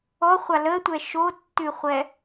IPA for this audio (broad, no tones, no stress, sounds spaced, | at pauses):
ɔ χʷ a l ə tʷ ɛ ʃ o tː ʉ χʷ ɛ